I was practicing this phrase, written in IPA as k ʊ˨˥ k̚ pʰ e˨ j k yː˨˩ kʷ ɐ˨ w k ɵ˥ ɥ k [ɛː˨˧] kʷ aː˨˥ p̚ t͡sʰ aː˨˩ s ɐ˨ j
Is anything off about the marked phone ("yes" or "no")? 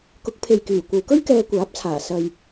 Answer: yes